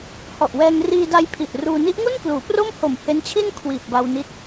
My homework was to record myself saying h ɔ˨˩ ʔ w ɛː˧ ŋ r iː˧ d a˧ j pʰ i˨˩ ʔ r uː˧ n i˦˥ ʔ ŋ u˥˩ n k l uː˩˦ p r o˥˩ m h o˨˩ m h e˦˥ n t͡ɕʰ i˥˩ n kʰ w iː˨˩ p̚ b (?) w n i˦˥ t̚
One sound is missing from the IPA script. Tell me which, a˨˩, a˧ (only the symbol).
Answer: a˧